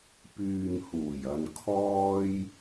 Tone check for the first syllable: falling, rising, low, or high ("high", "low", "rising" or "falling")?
low